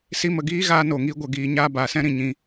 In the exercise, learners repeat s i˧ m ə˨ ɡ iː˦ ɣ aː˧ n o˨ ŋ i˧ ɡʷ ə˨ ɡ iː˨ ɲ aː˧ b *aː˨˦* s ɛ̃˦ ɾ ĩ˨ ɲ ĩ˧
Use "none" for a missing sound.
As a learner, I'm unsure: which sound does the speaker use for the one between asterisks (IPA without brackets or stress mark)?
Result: aː˨